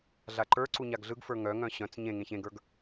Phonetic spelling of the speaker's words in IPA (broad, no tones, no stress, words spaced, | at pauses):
ɮaǃə˞ǀu ɲaɡɮɯɡfə˞ ŋœŋœ̃ ɕœ̃t͡s ɲẽŋẽç ẽɡə˞ɡ